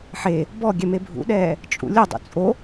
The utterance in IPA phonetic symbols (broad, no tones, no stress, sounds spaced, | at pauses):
ħ e | b ɔ ɡʲ ɛ m e bʱ ṵ ɗ ɛː | t͡ʃʼ ṵ lʲ ʊ dˤ ṵ t͡sʼ o